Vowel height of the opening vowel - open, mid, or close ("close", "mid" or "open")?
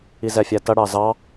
close